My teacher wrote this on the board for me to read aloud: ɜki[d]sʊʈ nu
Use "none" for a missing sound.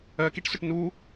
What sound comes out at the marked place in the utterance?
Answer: ʈ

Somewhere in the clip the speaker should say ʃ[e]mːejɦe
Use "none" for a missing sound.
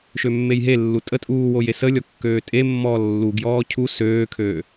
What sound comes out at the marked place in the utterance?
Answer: ø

